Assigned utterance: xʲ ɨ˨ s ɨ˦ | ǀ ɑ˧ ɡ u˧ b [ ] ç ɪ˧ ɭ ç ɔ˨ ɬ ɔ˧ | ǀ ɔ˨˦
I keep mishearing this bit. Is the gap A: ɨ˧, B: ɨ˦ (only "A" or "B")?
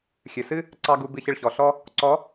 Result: A